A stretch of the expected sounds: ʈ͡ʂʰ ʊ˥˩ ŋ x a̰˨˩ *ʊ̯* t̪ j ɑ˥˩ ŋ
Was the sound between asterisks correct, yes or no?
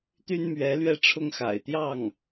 no